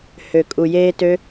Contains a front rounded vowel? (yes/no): yes